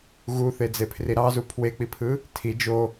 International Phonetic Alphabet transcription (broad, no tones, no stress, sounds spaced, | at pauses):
ɣ u θ e d͡z e pʰ r i ɾ ɑ z u pʰ w e k͡p i pʰ ɯ | tʰ i d͡ʒ o